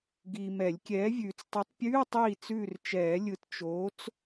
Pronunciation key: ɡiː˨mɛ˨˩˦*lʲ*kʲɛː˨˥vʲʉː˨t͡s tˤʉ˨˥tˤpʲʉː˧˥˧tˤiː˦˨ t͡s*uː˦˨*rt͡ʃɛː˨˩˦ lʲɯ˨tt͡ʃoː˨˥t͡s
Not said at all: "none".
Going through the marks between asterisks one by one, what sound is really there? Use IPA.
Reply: lʲ, ʉː˦˨

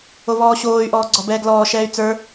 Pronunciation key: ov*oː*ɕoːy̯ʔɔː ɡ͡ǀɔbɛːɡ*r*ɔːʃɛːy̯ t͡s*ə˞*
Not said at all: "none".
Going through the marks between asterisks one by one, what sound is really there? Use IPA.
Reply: ɔː, l, ə˞

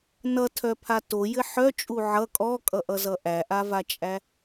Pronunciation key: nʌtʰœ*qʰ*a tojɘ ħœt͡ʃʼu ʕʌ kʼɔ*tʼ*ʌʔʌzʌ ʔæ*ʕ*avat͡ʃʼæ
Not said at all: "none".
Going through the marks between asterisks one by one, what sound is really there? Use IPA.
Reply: pʰ, kʼ, ʔ

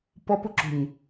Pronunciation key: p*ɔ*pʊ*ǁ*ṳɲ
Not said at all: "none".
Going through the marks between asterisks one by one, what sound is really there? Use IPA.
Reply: ɔ, ǁ

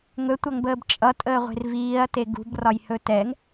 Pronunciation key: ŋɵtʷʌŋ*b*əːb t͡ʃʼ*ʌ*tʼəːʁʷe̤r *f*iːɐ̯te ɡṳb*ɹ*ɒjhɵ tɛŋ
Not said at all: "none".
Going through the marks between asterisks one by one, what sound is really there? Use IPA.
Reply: b, ʌ, v, r

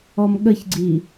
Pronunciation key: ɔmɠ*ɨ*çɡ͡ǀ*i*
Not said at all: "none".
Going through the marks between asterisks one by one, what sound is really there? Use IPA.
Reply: ə, i

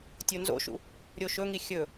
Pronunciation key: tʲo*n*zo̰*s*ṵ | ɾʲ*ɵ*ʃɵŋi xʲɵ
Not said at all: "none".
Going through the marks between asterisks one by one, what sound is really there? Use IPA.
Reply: n, ʃ, o

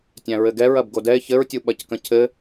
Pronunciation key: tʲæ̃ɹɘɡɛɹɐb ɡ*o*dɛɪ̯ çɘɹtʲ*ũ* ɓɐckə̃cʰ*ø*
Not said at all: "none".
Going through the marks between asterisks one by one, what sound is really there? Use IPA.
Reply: o, u, ɘ

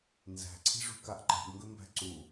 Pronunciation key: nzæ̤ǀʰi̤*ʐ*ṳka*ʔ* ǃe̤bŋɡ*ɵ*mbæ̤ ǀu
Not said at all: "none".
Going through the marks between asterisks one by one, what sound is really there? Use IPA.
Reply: ʐ, ʔ, ɵ

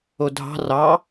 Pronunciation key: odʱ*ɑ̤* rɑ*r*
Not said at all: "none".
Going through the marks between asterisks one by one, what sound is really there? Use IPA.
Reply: ɑ̤, none

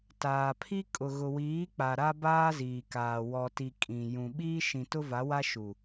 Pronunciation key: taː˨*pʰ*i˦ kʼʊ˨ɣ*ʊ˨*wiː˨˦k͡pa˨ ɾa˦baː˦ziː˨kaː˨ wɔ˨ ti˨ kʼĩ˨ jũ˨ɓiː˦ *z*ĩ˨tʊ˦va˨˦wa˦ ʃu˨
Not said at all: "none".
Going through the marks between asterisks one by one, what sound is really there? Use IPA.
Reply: pʰ, ʊ˨, ʃ

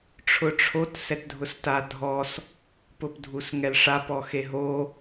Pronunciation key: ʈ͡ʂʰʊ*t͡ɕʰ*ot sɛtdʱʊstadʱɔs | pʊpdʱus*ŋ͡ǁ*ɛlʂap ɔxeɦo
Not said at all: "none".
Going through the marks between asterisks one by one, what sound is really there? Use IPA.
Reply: ʈ͡ʂʰ, ŋ

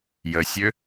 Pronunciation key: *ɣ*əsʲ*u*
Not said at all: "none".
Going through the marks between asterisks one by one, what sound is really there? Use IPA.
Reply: j, ø

